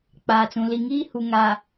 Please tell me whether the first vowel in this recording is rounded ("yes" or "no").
no